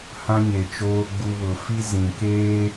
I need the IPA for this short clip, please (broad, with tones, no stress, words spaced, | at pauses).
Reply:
hã˦ɲe˨t͡ʃoː˦ɡ͡bu˦ βʊ˨fi˦ zĩ˨keː˦